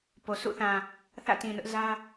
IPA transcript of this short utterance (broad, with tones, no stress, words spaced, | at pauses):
po˨sṵ˦˨θã˨ | θä̰˦˨tĩ˨nʊ˦ʔ zä˦